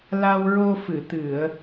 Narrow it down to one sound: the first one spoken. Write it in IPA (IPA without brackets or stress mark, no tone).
l